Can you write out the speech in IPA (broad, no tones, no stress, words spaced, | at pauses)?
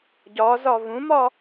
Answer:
ɟɒzɒ vũmɒ